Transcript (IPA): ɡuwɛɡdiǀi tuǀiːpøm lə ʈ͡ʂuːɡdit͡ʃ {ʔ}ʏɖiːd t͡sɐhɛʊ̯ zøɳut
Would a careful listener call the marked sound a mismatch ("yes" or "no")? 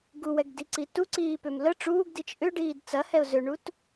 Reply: no